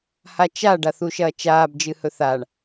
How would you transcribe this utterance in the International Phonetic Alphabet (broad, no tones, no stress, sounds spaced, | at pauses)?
h a t͡ʃ a ɖ a θ u ʃ ɐː t͡ʃ aː b d͡ʒ ɨ h ɵ θ a ɳ